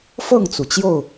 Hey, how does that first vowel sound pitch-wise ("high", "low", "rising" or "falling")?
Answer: falling